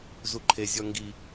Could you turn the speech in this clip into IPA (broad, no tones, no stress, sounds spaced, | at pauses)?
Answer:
z u ǃʰ e zʲ ɔ ŋ ɡ i